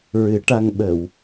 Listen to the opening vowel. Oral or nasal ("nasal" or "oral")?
oral